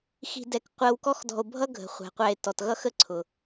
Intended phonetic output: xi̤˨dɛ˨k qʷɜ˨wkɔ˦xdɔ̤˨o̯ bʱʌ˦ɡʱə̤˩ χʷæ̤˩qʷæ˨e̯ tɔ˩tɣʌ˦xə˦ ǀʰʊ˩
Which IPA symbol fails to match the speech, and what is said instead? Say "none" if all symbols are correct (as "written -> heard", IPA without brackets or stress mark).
none